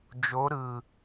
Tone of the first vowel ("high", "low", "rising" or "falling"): rising